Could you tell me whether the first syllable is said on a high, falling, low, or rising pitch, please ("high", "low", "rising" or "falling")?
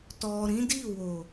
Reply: low